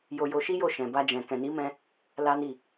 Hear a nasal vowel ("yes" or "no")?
yes